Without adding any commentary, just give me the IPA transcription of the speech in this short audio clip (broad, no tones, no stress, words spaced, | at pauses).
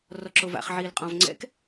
rɔǁova̰χ ʕiːlqʼɔ̃v ŋ͡ǀɛ̰k